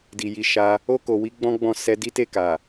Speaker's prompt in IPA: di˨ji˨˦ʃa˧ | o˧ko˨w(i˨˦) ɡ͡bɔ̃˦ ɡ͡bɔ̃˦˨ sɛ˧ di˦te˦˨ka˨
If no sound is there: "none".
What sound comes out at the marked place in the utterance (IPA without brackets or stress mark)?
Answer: i˨˦